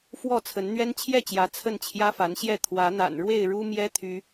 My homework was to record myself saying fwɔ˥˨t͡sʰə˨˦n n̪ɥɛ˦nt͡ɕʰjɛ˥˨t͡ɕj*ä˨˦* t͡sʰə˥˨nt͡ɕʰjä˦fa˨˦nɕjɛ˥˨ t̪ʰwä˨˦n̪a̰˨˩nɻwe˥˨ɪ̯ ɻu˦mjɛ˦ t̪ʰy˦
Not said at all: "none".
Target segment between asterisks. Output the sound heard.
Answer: ä˨˦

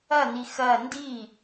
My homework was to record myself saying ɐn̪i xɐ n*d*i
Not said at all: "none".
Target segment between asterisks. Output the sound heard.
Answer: d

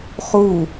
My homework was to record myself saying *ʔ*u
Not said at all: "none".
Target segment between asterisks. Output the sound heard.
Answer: χ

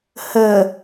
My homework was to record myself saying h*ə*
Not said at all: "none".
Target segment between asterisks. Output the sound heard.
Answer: ə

